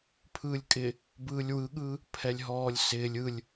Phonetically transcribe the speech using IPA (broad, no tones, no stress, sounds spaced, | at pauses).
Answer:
pʰ ɯː lʲ kʼ ɪ | b ɯː lʲ w ɯ ɠ ɯː | pʰ ɛ lʲ ɦ ɔː lʲ s ɪː lʲ ɯ lʲ